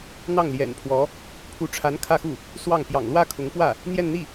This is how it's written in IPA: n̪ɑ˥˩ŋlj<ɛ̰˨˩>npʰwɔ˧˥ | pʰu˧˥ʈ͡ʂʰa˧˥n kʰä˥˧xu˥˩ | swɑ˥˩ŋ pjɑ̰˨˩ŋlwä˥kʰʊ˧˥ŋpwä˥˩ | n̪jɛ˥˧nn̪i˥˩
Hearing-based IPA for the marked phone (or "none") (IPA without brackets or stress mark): ɛ̰˨˩